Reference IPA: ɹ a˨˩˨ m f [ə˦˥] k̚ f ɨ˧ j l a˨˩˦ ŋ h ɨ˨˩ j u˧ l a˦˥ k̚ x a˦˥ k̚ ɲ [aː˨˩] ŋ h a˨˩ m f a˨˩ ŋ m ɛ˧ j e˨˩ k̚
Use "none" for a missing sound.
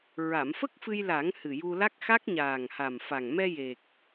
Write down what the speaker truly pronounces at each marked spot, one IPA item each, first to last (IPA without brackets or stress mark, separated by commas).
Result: ə˦˥, aː˨˩